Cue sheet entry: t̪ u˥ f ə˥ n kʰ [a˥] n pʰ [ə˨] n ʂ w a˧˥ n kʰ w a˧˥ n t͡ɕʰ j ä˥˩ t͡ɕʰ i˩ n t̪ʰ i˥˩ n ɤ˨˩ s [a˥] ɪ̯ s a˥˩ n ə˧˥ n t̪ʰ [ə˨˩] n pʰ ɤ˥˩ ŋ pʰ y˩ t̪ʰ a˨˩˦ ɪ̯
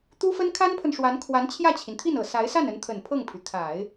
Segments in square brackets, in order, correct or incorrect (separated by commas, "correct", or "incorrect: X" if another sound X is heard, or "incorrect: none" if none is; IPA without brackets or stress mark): correct, correct, incorrect: a˧˥, correct